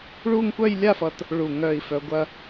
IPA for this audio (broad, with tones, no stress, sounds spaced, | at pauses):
ɭ u˥˧ ŋ kʷ œ˥˧ j lʲ a˥˧ f ʌ˧ t | ɭ u˧˩ ŋ œː˧˩ i̯ f œ˧ ɡʷ ɐ˥